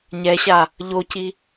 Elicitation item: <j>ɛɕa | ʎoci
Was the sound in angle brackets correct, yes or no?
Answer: no